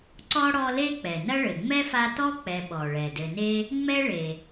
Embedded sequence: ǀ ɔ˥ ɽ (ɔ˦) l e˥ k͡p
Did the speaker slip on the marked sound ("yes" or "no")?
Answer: no